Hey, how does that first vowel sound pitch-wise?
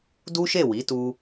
high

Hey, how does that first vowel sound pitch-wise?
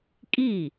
falling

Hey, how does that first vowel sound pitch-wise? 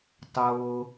low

